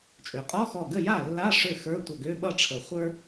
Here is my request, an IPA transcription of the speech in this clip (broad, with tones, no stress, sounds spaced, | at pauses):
t͡ʃʼ ø˩ qʼ ɔ˧˥˧ x ɔ˧˩ ɡ ə˥˩ j a˥˩ lː a˧˥˧ ʂ ø˥˩ x ə˞˧˥˧ tʷ ʌ˧˩ ɡ ø˧˥˧ ɓ ʌ˥˩ ʈ͡ʂʰ ə˨˩˦ χʷ ə˞˥